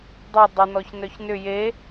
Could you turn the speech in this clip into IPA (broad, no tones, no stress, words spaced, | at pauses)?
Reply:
dˤœ dˤʏnɔçnœç nʏ je